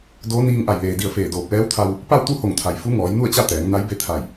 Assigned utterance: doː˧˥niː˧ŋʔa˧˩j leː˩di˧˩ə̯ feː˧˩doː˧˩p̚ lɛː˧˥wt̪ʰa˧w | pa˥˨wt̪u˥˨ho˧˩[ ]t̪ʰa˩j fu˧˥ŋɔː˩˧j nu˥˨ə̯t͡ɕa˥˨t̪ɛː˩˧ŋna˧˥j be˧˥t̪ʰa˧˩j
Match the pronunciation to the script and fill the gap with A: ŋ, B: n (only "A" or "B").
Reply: A